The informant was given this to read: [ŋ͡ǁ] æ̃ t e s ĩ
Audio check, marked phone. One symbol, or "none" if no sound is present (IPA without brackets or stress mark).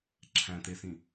ǁʰ